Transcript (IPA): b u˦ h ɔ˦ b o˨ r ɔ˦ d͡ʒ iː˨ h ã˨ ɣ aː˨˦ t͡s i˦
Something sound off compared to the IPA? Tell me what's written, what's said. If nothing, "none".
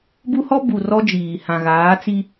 o˨ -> u˨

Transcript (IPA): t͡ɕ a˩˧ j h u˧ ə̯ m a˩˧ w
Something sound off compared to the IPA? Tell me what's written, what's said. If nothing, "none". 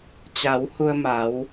j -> w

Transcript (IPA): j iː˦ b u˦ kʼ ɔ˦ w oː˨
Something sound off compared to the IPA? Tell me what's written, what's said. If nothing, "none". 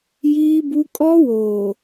none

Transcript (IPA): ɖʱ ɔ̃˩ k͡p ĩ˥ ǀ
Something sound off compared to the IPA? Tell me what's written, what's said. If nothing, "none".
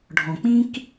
ǀ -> k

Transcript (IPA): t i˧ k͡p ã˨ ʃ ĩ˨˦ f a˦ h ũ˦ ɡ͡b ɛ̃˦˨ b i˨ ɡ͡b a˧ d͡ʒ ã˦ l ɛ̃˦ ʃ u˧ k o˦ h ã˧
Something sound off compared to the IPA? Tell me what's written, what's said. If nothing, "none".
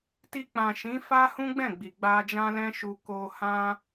b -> ɡ͡b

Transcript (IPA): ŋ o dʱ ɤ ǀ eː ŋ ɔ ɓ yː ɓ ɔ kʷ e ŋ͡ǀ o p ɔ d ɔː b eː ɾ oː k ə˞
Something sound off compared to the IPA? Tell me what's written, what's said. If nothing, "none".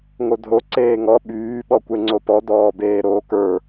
ɤ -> o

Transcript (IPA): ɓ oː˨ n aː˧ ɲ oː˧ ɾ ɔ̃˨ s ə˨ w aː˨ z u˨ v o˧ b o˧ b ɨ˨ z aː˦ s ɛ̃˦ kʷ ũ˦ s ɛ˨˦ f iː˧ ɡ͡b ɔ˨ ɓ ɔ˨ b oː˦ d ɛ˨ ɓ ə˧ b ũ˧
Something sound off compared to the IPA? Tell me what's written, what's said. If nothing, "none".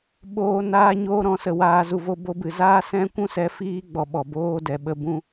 none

